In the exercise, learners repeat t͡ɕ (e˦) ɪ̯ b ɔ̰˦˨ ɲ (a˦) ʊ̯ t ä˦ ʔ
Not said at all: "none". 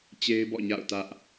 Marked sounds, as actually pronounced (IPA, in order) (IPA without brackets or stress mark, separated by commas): e˦, a̰˦˨